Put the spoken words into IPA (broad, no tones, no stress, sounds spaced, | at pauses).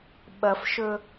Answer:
ɓ ɐ f ʃ ɵ